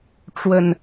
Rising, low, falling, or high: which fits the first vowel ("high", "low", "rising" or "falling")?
low